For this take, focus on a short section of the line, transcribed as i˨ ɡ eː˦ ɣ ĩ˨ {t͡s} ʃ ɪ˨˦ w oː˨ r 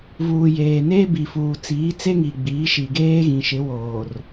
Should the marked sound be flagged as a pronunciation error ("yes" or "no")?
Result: yes